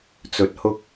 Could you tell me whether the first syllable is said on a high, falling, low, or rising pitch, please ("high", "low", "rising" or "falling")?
rising